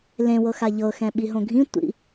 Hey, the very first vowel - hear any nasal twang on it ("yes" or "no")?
yes